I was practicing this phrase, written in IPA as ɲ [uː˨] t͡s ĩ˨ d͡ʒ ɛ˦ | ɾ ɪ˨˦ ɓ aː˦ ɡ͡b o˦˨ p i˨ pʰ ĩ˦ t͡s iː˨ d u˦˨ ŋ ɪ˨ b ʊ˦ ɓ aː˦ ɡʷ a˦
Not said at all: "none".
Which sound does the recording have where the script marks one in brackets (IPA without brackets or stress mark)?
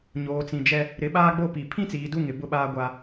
oː˨